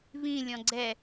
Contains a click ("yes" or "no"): yes